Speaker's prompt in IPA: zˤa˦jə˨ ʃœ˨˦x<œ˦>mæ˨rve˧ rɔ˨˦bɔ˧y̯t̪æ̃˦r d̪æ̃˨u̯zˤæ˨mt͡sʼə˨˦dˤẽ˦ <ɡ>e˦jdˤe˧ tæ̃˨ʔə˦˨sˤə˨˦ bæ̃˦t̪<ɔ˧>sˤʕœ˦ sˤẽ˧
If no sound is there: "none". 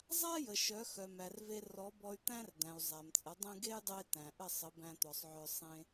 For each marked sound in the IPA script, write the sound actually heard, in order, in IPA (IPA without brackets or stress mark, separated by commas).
œ˨, ɡ, ɔ˧